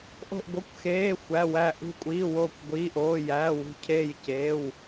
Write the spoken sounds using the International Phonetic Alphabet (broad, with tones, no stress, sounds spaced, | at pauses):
ʔ o̤˧˩ ʔ ɡʷ ʌ˩˧˩ kʷ x eː˩˧˩ xʷ æ˩˧˩ w æ˧˩ ʔ ṳ˧˩ kʷʼ iː˩˧˩ w oː˧˩ kʷ ɡʷ iː˩˧˩ ʔ oː˩˧˩ j æː˩˧˩ w ṳ˧˩ cʰ eː˧˩ j c eː˩˧˩ w